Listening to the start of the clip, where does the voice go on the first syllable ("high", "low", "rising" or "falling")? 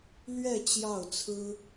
falling